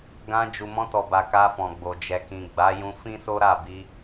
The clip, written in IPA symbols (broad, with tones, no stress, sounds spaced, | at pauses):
ɡ ã˧ d͡ʒ u˨ m ɔ̃˧ t ɔ˨ b a˨ k a˧ f ɔ̃˨ ɡ͡b o˨ d͡ʒ ɛ˨ k ĩ˨ ɡ͡b a˨˦ j ũ˧ f ĩ˦ s o˦ ɾ a˦˨ b i˧